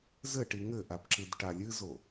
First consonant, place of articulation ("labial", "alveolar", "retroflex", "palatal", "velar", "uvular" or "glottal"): alveolar